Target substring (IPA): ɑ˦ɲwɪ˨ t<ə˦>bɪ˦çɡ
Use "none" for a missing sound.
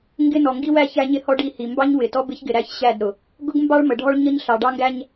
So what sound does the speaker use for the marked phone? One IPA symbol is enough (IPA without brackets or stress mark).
ɔ˦